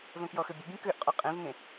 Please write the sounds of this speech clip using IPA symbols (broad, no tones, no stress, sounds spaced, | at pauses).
v œ̃ k j ɔ x ø bʲ ə bʲ ẽ k ø ʔ qʼ ɔ qʼ ẽ v ŋ ẽ